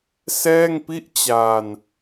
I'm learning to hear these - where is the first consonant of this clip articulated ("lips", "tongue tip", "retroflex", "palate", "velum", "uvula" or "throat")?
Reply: tongue tip